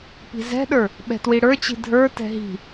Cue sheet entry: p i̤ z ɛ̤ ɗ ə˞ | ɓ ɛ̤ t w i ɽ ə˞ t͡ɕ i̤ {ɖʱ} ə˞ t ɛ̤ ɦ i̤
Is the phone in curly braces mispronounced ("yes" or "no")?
yes